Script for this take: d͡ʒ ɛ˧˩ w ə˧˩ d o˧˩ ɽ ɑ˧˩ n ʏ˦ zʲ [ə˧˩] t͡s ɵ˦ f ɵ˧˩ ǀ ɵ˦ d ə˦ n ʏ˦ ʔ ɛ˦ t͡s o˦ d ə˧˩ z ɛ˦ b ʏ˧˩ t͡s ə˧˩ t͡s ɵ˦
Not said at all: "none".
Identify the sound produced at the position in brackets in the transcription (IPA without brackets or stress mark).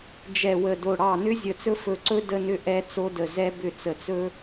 ə˧˩